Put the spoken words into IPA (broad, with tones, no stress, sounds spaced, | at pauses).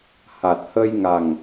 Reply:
h a˨˩ t̚ h ə˧ j ŋ a˨˩ ŋ